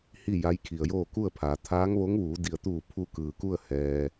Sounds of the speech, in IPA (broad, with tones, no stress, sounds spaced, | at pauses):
h i˥˨ j a˧˥ j kʰ i˩ ə̯ j oː˥˨ k u˥˨ ə̯ pʰ aː˩˧ t̪ʰ aː˧˥ ŋ ʋ o˧˥ ŋ ʋ uː˩˧ d i˩ ə̯ t̪ uː˧˩ pʰ u˧ k ɯː˩ k u˥˨ ə̯ h ɛː˩